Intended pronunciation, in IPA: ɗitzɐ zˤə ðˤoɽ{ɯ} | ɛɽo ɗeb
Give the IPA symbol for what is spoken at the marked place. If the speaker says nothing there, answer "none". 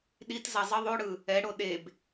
ɯ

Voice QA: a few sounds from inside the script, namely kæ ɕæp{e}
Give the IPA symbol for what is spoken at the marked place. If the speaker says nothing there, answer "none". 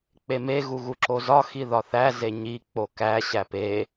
e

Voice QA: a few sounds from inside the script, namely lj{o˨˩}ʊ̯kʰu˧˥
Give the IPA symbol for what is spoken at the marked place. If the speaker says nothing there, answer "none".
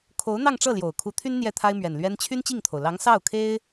o˨˩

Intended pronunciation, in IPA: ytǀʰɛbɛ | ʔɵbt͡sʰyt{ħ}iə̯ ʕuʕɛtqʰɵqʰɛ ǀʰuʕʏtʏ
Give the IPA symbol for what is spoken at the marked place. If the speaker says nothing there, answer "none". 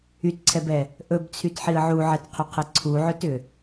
ħ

